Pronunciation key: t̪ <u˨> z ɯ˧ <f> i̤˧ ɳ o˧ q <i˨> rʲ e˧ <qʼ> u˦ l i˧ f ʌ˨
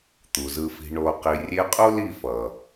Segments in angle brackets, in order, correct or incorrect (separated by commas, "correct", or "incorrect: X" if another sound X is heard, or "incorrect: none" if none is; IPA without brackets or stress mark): correct, correct, correct, correct